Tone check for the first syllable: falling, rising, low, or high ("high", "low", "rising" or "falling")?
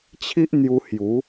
high